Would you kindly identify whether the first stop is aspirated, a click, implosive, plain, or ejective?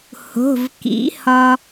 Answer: plain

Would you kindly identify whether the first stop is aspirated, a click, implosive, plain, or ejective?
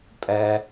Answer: ejective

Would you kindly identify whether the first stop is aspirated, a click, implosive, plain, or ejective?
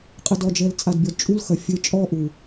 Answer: ejective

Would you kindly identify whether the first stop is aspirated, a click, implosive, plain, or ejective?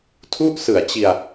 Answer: aspirated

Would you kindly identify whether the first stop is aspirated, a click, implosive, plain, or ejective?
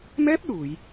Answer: plain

